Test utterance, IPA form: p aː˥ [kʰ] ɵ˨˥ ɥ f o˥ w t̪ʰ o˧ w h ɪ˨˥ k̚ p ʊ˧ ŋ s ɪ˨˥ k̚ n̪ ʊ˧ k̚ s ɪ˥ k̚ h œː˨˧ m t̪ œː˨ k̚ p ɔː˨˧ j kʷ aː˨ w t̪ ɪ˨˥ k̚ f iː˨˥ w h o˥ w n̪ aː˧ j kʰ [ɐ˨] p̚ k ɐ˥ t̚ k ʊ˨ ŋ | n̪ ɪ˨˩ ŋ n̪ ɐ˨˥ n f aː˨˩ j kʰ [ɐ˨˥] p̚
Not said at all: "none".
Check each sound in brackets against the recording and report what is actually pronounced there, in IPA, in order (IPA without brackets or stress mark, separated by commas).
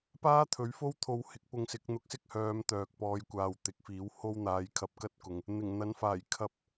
t̪ʰ, ɐ˧, ɐ˨˥